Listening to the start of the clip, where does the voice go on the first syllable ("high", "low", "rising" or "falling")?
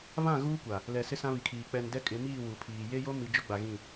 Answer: falling